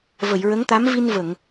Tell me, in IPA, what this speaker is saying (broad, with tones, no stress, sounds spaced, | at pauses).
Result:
v ə˨˩˨ j ɹ ə˧˥ ŋ t̪ a˧˥ m v i˧ n v ə˨˩˨ ŋ